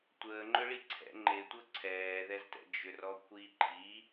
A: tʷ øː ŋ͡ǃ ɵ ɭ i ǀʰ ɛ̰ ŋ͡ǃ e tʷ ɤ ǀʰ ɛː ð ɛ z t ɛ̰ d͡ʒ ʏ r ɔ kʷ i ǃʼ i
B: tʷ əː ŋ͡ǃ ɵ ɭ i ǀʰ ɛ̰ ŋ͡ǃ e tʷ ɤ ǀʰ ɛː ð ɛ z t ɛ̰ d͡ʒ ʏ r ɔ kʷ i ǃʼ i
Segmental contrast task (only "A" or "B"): B